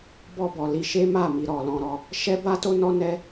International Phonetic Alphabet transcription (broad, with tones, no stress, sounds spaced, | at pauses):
b ɔ˧ b ɔ˨ l i˧ ʃ e˦ m a˦˨ m i˨ ɾ ɔ˨ l ɔ̃˧ ɾ ɔ˧ | ʃ ɛ˦ b a˦ t o˦ n ɔ˦ n ɛ˦